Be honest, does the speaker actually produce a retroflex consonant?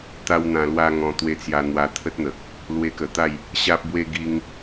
no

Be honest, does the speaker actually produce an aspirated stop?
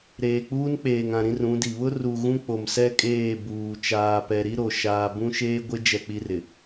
no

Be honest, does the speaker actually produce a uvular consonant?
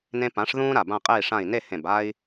yes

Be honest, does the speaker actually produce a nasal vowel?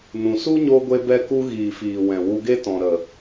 yes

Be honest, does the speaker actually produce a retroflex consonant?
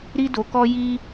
no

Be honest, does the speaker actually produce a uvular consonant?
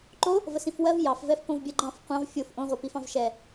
yes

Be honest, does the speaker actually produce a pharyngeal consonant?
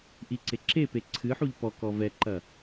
yes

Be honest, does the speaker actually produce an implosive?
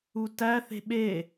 yes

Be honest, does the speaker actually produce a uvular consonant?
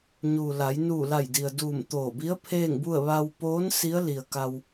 no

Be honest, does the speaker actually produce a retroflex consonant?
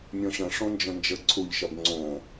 yes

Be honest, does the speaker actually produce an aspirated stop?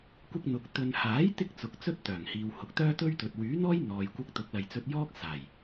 no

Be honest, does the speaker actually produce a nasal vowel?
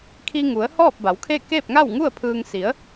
no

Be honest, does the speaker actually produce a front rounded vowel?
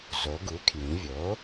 no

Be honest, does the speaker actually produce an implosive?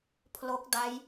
no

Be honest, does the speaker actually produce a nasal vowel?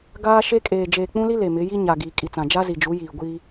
yes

